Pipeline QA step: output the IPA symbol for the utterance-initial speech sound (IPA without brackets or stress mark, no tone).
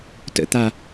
t